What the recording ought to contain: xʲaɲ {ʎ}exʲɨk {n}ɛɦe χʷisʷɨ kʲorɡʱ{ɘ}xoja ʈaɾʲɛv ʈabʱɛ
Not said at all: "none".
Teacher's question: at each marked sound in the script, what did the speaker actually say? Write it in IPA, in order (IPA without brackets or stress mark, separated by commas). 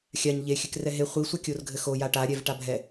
ʎ, r, ɘ